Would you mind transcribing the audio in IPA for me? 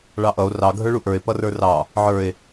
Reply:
ɭ ɑ ʔ ʌ o̯ r ɑ ɡʱ ə˞ ɭ u ʔ ə˞ e̯ p ʌ r ə˞ r ɑ | ʕ ə˞ e̯

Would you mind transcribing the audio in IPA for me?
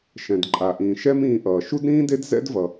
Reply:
ʃ ɛ̃˨ d ǃʼ a˨ ʔ ĩː˨ ʃ ɛ˦ m ĩː˧ ʔ ʌː˨ ʃ u˦ d ɾ ĩː˦ d e˦ d z ɛ̰˦ d v ʌ˨

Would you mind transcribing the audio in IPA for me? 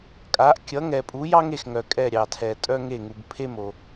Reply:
kʼ a˨˥ ʔ kʲ ʌ˨˥ ŋ ɛ˨ pʼ u˨˥ j ɑ˥ ŋ e˨ x ŋ œ˨ kʼ ɛ˦˨ ɾʲ ɑ˨ tʰ ɛ˨ tʼ œ˥ ŋ e˦˨ ŋ u˨ b pʰ e˥ m o˨

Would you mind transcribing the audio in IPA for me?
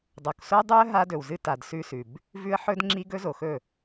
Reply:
dˤ o˨ k s o˦ dˤ u˦ ə̯ ɦ a˦ d ɵ˨ w z ɨ˦ t a˨ d s ʉ˦ s ʉ˨ b | v ʉ˦ ə̯ ħ ɵ˦ d ŋ͡ǁ i˦ ɡ ɵ˦ z o˨ x ɵ˦˨

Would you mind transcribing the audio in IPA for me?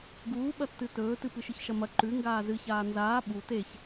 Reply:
ɡ uː ɓ ɐ tː ɨ t ɵː t ɨ p ɨ ʃ ɨ ç ʃ ɐ m ɐ ǃ ʉ ŋ ɡ aː z ɨ ç aː n z aː ɓ u t e ç

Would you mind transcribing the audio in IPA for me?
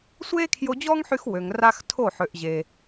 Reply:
sʷ eː˦ kʰ j o˧ d͡ʑ ɔː˦ ŋ ħ y˧ x w ø˨ ŋ r a˦ x tʰ o˦˨ ħ ø˨ ʔ ʑ e˨

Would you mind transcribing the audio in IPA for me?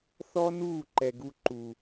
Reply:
θ ɔ˦ n uː˦˨ ǃ ɛ˨ ɡ u˧ ǃ u˨

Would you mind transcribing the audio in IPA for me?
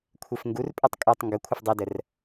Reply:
kʷʰ e f ŋ ɡ u r pʼ ɨ tˤ kʼ u tˤ ŋ ɡ ə kʷʰ ə f dˤ e d ə r

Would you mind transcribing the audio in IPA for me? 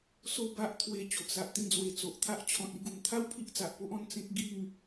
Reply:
s o˧ b a˦ ʔ t̪ʰ w e˧ t͡ɕ o˨ ʔ s a˨ ʔ t̪ ĩ˥˧ d͡z w e˧ t͡s o˨ ʔ t̪ʰ a˦ ʔ t͡ɕʰ ɔ̃˨ t̚ i˧ ɡ u˨˩ m t̪ʰ a˦ w pʰ i˦ ʔ t͡s a˨ ʔ p o˦ ʔ ɔ̃˧ n t͡s ẽ˦ k̚ ɡ i˥˧ ŋ

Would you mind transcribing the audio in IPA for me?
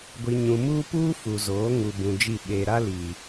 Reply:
ɡʷ i˨ ɲ ũ˨ m uː˦ p uː˦ f u˨ z oː˨˦ ŋ u˨ b ũ˨ d͡ʒ i˦˨ ɓ eː˨ ɾ a˦ l i˨

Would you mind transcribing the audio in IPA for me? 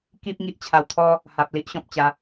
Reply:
k i˦ p̚ ŋ i˦ ʔ t͡ɕʰ a˧ w t̪ʰ ɔ˦ | h a˨ p̚ l i˦ ʔ ɕ ɔ̃˨ p̚ t͡ɕ a˧

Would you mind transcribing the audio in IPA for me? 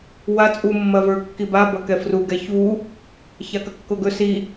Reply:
w a t͡sʼ u mː ɐ v ə˞ kː i b a b ɐ k ɛ f r u ɡ ɛ ç u | ç a k ɐ kː o ɡ ɵ s i

